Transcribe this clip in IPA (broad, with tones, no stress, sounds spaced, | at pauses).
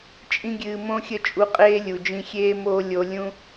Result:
t͡ʃʼ ĩ˦ ɡʲ ɨː˧ m õ˦ xʲ ə˦˨ t͡ʃʼ u˧ qʼ eː˦ lʲ u˨ d͡ʒ ĩ˧ xʲ eː˦ m oː˦ lʲ o˧ lʲ ũ˦